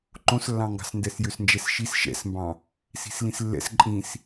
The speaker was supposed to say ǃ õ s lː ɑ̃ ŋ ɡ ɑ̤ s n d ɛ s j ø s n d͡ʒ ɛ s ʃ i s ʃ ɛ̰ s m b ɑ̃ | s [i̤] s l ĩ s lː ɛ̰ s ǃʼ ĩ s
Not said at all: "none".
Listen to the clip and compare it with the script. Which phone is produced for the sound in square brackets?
i̤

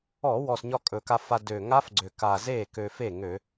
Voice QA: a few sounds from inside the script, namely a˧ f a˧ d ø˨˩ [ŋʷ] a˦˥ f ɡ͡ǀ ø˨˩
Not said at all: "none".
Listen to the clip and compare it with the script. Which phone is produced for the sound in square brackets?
ŋ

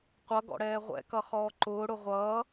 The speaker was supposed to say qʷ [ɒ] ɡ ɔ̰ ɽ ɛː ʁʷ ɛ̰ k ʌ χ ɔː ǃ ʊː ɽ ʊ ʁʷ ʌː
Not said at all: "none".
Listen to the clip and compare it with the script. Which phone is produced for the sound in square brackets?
ʌ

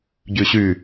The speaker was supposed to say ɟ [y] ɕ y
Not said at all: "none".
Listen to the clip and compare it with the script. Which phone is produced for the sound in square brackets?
y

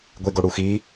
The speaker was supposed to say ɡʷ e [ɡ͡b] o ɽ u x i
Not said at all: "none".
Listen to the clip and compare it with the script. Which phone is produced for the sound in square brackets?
ɡ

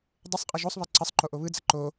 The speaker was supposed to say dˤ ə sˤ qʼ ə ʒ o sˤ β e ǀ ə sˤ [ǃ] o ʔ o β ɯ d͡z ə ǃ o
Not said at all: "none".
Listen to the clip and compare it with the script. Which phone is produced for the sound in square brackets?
ǃ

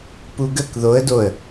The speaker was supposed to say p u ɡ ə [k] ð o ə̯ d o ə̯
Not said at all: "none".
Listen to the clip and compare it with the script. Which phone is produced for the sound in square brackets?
k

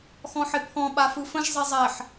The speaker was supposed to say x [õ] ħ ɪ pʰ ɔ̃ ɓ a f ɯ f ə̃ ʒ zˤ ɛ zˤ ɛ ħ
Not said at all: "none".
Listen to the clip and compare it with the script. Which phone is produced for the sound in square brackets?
ɔ̃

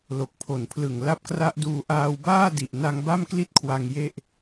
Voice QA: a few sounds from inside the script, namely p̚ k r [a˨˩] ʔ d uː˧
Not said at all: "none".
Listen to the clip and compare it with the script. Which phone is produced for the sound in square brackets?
a˦˥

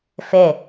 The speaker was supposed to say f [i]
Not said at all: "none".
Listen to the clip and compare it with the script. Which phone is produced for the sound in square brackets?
e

